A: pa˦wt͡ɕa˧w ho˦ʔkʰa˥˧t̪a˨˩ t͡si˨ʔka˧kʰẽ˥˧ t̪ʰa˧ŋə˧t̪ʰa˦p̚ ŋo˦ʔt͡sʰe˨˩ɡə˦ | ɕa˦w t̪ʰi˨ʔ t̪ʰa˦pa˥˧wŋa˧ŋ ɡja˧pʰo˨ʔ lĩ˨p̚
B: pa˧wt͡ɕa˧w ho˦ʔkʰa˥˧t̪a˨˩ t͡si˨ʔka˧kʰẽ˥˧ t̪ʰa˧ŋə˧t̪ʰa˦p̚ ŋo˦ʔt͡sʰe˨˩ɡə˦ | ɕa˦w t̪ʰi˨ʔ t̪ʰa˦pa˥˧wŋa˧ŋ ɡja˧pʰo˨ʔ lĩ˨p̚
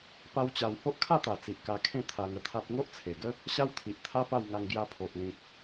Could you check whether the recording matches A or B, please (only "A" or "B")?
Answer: A